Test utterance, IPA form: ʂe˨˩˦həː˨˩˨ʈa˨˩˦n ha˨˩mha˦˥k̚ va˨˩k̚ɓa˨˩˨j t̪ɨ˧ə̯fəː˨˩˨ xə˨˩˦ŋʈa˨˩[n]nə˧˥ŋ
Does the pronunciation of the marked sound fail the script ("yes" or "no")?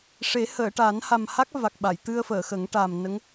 yes